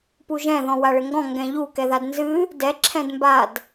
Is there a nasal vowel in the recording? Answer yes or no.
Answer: yes